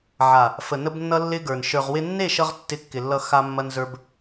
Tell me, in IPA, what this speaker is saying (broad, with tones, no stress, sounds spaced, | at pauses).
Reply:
ʕ a˨ | f ə˨ n ə˧ b nː ʌ˧ lː ɪ˦ ɡ ə˞˨ n ʃ ə˞˨ ʁ w ɪ˧ nː e˦˨ ʃ ʌ˧ ʁ tː ɪ˧ kː ɪ˨ lː ʌ˧ x a˧ mː ɐ˧ n z ə˞˧ b